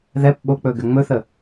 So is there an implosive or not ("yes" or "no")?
yes